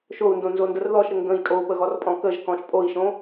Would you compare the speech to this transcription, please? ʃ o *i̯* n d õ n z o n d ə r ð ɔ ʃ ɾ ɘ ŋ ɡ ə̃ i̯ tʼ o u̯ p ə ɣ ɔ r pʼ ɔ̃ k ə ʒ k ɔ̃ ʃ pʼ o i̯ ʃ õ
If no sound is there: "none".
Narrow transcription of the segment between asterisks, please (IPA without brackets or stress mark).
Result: u̯